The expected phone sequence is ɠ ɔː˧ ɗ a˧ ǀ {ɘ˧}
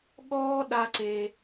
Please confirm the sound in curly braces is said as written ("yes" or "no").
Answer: no